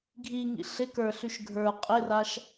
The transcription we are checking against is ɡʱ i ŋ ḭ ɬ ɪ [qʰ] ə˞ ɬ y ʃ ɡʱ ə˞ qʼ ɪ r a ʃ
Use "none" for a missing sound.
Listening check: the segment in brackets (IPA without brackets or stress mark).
k